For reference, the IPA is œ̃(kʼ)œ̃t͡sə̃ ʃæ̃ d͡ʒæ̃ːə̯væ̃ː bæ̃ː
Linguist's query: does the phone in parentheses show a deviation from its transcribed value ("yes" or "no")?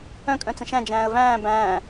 no